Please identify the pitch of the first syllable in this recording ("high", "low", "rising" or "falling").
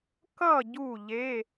falling